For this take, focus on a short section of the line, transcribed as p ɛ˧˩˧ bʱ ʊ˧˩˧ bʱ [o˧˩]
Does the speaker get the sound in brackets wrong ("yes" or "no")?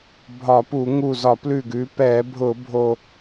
no